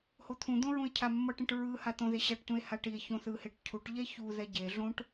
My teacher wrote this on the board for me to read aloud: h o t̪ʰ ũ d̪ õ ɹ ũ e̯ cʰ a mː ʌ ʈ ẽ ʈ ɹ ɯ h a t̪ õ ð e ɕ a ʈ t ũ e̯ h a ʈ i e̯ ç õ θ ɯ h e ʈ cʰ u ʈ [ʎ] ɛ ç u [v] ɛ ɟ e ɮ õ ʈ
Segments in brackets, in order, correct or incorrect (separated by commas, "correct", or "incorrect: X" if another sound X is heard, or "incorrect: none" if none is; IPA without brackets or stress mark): correct, incorrect: ð